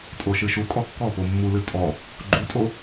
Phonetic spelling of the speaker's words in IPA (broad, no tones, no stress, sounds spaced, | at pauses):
tʼ o ʃ ɨ ʃ u kʼ ɔ kː ɔ p o mː u l ɨ tʼ ɔ | ɡ͡ǃ u tʼ o